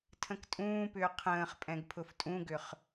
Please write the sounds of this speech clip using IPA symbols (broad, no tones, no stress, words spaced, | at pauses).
tʰə̃ktʼũːpʏː qʰə̃ːχ pʼɛ̃ɡpʰʊftʼũɡʏχ